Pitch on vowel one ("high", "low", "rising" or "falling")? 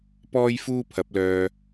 high